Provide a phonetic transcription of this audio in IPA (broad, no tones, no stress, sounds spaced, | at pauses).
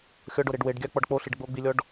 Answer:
xʲ ɔ ɖ o ɾ e ɖ w e ɖ ɡʲ a k͡p ɔ ɖ k͡p o ɬ i ɖ ɡ͡b o ɡ͡b i lʲ ɔ ɖ